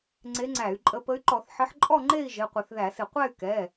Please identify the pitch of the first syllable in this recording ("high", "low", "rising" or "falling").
rising